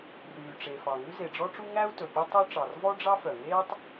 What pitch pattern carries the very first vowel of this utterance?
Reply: low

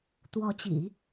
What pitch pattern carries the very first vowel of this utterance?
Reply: rising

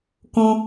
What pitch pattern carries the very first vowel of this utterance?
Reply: high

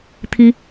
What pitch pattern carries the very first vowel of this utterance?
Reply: high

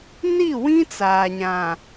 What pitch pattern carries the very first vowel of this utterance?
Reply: falling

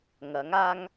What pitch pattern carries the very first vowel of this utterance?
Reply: rising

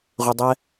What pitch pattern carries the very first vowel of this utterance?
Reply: low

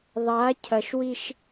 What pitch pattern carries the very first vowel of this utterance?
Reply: rising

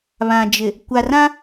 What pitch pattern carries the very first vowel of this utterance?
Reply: low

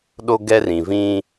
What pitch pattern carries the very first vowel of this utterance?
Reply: high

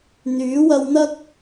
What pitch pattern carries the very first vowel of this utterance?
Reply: rising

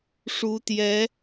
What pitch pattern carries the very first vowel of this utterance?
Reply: rising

